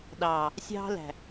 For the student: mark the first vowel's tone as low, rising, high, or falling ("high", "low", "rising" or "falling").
low